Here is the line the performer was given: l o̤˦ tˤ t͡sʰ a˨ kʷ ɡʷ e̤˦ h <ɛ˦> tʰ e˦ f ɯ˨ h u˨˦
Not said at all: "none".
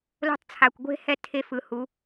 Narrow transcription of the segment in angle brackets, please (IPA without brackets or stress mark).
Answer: ɛ˦